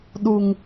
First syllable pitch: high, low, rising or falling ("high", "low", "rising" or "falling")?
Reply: low